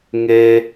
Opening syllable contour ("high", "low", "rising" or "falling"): high